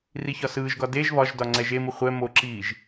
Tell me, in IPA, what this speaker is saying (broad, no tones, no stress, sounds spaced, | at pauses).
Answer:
r i ç ɒ s ɯː ʒ ɡ ɒ d e ʒ β ɒ ʒ d ɒ ŋ͡ǀ ɛ ʒ e m ɯ χʷ ɛ m o ǁ iː ʒ